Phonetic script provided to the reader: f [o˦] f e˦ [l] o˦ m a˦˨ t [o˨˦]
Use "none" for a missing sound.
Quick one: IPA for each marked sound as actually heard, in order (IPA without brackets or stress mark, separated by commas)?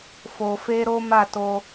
o˧, ɾ, o˧